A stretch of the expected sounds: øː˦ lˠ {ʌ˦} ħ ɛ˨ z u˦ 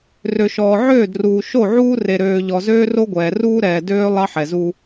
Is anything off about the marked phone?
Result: yes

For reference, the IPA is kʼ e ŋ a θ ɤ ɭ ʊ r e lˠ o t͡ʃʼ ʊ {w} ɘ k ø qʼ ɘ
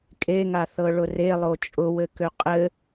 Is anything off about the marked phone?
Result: no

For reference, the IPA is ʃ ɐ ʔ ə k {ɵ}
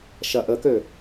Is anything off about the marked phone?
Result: yes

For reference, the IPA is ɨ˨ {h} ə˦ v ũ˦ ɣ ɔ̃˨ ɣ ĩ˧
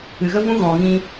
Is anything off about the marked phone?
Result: yes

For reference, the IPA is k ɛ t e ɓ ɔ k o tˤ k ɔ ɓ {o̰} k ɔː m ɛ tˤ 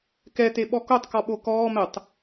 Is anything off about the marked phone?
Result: yes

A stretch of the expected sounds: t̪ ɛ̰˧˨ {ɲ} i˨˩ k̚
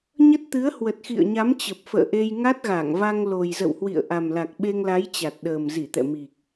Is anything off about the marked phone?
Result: yes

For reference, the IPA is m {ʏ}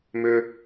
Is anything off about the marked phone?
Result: no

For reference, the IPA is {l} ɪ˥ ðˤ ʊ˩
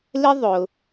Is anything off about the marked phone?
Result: no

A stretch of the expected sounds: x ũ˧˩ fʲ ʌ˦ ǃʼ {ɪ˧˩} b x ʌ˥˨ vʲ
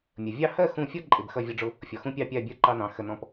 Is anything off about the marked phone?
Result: no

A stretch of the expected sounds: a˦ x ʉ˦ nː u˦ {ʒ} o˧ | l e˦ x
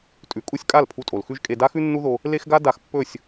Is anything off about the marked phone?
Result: yes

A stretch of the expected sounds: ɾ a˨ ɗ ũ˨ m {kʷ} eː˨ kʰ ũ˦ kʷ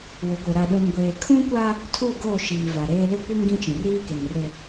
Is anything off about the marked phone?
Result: yes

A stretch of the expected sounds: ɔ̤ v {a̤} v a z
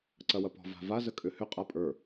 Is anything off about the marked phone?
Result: no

